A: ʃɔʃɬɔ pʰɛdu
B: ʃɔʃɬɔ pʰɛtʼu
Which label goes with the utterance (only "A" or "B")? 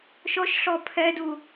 A